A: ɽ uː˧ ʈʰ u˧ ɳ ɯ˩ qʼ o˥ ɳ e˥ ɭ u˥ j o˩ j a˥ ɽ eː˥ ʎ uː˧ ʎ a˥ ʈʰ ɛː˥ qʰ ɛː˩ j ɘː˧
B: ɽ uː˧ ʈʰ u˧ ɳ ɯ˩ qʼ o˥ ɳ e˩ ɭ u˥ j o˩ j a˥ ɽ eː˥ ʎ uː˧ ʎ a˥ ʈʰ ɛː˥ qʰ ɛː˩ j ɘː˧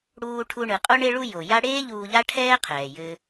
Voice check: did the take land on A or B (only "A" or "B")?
A